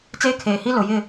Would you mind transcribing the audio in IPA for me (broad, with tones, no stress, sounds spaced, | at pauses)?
t͡s eː˦ kʰ eː˨ h i˦ l ʊ˨ j ɪ˦˨